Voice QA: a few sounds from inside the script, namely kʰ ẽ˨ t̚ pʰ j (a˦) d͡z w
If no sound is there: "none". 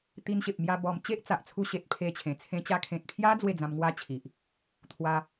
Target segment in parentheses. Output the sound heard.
a˦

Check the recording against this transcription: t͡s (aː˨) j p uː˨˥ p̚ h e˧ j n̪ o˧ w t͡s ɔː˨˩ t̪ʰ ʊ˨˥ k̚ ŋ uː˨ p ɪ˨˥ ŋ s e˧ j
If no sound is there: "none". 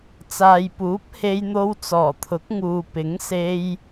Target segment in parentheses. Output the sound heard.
aː˨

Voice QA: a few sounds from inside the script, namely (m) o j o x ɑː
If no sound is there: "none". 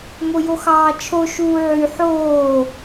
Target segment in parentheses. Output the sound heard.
m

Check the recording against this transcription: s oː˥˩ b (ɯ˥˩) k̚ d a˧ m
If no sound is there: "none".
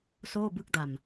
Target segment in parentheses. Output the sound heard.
ɯ˥˩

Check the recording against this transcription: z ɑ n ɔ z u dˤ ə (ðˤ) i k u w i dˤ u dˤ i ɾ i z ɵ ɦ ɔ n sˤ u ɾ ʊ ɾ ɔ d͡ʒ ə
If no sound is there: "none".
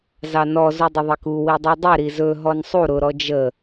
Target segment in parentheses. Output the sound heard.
ðˤ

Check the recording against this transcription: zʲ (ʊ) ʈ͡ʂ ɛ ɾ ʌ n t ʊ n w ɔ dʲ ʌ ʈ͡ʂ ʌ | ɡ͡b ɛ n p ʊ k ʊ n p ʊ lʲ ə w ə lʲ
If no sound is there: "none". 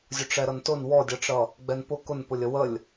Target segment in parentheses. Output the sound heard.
ʊ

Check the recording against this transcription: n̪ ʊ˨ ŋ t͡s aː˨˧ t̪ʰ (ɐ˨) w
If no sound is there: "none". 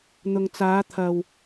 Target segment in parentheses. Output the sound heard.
ɐ˨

